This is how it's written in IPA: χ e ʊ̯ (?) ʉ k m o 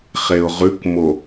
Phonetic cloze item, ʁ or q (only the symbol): ʁ